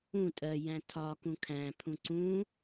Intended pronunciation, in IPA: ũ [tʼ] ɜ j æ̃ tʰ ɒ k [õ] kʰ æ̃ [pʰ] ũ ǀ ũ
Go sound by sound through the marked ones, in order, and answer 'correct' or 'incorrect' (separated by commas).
correct, incorrect, correct